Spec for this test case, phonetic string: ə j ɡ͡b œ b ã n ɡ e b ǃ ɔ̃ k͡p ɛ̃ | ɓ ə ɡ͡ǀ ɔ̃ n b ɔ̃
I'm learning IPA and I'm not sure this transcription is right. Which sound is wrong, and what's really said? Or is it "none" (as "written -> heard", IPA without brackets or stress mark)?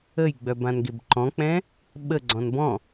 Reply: none